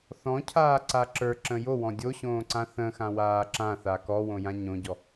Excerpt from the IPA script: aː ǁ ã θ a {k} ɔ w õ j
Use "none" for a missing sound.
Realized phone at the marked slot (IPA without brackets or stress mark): k